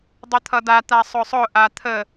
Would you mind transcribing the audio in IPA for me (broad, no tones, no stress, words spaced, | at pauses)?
dˤʊt̪ʰʌda t̪asˤʊsˤʊ ʔat̪ʰə